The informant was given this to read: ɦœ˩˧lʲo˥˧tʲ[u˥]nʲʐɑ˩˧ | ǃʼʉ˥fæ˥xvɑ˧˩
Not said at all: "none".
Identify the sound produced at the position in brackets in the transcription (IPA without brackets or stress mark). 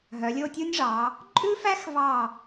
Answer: u˥